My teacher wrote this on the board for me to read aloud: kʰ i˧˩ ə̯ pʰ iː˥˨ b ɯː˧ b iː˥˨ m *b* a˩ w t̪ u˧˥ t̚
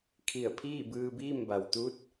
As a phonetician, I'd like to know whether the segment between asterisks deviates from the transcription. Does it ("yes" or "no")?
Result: no